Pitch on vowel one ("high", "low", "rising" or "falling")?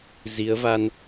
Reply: rising